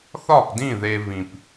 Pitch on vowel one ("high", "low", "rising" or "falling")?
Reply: falling